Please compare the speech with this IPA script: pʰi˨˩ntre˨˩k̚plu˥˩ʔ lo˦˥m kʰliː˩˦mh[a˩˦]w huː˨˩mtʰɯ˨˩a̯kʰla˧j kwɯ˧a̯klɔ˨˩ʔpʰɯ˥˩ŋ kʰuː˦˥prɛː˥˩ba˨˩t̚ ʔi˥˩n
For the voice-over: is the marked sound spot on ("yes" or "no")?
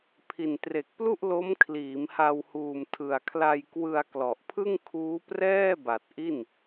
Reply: no